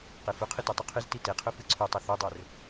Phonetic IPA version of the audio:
qefɵqʰɨ tʉtˤuqʰɨzti teqʰɵ fɨǀʰʉtˤɐ θudˤɵr

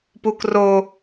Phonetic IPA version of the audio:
puk ro

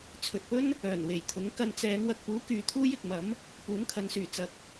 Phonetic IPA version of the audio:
t͡sʰɵ˨t̚pɵ˥n | œː˨˩nwe˨˩jt̪ʰʊ˨˥ŋ kɐ˧nt͡sɛː˨˧ŋ wɐ˨k̚puː˨˥ kyː˨t̪ʰuː˥jɪ˨k̚mɐ˨˥m | puː˨˥nkʰɐ˨˧nsyː˨˩ t͡sɐ˨k̚

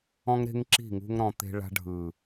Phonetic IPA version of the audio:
ɔ̃˦ŋɾe̤˦ŋǁi̤˦˨ ŋṳ˦ŋɾɔ̃˧ t̪e̤˧ɭa̤˧ɖʱɯ˨

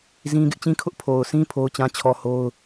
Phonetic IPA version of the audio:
zĩ˦ ɡɪ˦ʔt͡ɕĩ˦kʰʊ˦ʔ pʰo˨ʊ̯sĩ˦ pʰo˦ʊ̯t͡ɕã˦t͡ɕʰɔ˦ho˦ʊ̯

